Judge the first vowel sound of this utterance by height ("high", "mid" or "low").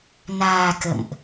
low